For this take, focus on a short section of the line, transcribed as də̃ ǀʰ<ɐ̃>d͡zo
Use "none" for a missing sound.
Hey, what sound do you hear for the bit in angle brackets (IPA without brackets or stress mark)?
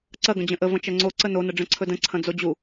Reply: ɐ̃